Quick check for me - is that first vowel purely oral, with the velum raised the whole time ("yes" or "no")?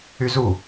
yes